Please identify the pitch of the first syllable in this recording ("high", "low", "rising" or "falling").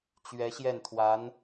rising